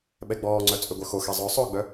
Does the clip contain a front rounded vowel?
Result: yes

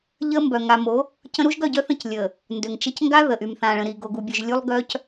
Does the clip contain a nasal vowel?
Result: yes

